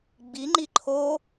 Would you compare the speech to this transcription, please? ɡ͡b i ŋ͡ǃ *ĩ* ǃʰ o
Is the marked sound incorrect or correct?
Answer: incorrect: i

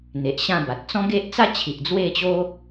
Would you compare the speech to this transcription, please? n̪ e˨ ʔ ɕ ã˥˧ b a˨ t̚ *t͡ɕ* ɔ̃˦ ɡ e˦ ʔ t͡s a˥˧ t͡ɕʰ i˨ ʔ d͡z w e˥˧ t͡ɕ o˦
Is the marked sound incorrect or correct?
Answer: incorrect: t͡s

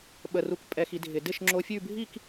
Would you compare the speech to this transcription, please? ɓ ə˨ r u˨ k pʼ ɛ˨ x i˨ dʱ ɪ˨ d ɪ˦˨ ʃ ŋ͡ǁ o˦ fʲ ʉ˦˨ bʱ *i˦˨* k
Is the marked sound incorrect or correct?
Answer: correct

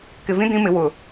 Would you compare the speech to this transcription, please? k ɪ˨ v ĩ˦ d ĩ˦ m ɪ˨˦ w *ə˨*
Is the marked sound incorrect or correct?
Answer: incorrect: ʊ˨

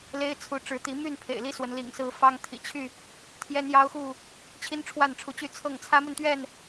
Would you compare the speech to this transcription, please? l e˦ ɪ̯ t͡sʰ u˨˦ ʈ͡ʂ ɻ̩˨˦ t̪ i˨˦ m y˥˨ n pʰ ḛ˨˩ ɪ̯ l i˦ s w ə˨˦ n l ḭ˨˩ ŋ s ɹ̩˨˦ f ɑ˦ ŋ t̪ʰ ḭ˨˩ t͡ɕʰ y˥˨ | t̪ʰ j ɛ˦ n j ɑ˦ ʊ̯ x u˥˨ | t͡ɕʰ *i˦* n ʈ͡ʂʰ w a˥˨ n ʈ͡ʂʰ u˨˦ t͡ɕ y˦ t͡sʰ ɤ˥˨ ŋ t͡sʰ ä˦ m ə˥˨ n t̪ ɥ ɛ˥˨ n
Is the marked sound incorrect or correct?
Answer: correct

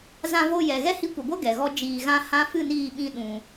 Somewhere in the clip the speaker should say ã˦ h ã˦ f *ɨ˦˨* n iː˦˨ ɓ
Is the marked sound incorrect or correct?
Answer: correct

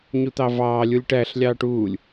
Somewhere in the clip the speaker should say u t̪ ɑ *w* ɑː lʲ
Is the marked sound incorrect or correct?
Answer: incorrect: v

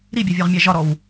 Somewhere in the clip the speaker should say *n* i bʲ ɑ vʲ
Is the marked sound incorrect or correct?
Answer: incorrect: ɾ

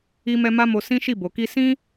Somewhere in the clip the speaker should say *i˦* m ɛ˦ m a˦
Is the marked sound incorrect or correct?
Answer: correct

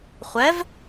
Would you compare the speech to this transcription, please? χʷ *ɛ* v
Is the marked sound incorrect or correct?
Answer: correct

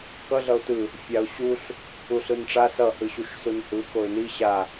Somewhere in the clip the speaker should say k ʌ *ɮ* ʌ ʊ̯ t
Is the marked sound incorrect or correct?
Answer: correct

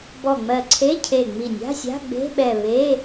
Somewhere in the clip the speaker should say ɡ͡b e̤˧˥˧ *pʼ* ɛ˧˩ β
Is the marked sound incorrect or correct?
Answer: incorrect: ɓ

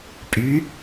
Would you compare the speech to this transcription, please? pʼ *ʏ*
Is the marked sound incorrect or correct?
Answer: incorrect: y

